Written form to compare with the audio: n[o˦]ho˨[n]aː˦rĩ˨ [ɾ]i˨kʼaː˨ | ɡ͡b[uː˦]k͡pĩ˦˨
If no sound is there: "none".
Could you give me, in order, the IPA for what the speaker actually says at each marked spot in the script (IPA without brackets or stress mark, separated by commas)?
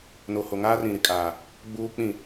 o˨, ŋ, ɾ, uː˦